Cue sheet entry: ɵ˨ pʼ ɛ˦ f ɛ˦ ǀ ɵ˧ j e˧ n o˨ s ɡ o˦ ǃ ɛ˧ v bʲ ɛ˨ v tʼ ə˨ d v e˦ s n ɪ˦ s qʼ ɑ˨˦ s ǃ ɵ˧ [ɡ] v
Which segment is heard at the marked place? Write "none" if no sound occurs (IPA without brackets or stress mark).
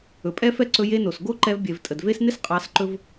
none